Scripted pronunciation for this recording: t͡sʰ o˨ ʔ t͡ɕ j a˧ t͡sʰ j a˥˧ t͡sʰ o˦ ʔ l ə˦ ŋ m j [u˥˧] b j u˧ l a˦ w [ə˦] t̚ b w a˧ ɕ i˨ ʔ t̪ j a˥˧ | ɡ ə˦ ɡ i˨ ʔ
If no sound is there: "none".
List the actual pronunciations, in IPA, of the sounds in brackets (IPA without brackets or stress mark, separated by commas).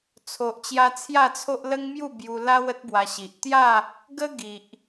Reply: u˥˧, ə˦